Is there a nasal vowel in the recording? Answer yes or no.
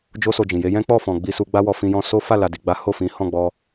yes